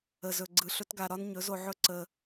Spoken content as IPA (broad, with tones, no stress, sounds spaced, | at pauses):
ə˨ z ɵ˨ ɡ͡ǀ ɯ˨ ɬ ɵ˧ t ɡ a˨ ɾ ɒ˦ n ɲ ɵ˨˦ z o˧ ʕ ɵ˦ ǀ ə˧